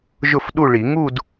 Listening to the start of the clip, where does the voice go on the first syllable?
falling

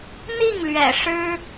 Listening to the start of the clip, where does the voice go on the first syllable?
falling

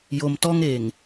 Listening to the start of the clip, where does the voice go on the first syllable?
low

